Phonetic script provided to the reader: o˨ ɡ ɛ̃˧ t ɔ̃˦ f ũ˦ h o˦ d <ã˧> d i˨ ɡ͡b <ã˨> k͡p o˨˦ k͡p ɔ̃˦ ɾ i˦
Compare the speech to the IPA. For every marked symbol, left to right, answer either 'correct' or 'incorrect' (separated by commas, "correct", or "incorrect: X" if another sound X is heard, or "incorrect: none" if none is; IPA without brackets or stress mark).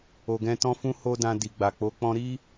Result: correct, incorrect: a˨